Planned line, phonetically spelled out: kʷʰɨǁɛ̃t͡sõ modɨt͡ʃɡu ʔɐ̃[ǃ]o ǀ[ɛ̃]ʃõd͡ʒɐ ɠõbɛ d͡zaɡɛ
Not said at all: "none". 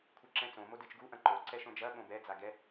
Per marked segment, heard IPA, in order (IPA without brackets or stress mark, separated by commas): ǃ, ɛ